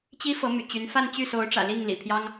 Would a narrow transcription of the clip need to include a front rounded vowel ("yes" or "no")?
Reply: yes